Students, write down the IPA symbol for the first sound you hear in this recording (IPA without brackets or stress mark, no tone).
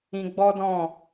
ĩ